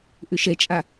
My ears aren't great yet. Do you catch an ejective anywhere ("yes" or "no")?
yes